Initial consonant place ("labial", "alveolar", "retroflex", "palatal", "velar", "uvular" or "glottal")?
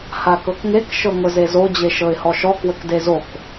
glottal